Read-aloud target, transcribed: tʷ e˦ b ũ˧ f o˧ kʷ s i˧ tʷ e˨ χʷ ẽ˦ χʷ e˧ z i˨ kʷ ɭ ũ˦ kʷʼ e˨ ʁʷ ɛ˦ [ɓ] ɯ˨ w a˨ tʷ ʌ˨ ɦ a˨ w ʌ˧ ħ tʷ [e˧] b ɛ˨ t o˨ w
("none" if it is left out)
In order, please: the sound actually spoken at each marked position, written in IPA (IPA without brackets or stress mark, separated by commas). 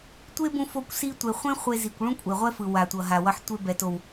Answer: f, e˧